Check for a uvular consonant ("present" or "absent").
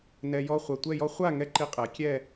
present